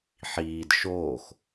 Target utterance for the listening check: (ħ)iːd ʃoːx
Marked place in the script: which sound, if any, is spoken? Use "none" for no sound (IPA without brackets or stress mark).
ħ